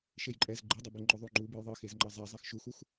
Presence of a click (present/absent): present